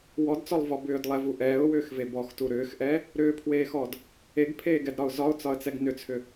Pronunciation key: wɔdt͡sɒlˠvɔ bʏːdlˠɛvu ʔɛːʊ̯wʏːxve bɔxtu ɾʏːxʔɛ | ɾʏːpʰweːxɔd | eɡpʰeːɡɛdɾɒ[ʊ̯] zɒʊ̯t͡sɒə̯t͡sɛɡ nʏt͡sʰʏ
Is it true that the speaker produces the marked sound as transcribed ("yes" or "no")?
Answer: yes